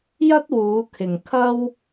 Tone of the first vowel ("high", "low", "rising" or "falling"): high